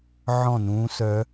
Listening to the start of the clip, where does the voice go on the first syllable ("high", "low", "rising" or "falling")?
falling